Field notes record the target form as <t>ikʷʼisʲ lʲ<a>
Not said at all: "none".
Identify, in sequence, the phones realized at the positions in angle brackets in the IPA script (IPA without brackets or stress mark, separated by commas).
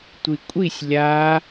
tʷ, a